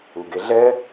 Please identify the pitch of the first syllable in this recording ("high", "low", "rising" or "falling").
low